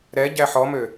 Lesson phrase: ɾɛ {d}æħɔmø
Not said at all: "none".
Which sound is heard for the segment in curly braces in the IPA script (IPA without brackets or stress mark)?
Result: ɟ